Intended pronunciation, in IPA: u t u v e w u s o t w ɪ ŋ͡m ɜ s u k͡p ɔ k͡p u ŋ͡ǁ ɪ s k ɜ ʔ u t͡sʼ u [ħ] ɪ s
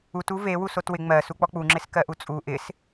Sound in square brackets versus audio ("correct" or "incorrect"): incorrect